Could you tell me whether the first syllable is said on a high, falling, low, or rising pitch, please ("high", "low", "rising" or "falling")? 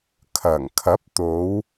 low